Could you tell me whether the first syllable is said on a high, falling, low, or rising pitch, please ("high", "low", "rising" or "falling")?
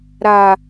low